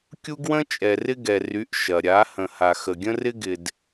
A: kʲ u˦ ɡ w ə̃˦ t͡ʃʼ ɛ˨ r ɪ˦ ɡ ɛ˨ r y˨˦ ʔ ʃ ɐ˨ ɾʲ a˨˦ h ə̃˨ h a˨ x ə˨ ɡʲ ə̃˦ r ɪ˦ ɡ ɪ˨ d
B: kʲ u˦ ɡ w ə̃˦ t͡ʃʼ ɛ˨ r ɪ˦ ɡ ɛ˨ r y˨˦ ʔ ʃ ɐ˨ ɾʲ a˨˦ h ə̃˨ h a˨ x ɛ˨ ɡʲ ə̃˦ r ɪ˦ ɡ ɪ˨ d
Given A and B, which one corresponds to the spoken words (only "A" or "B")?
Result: A